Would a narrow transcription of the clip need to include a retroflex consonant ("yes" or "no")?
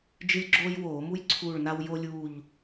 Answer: yes